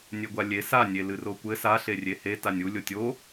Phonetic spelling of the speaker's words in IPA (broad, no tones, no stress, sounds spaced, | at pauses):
nʲ e ɡʷ a lʲ e s a nʲ e l ɨ r o kʷ ɘ s a ɬ e rʲ e h e t a nʲ u lʲ o tʲ o